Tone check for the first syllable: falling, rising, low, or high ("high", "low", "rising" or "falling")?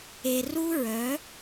low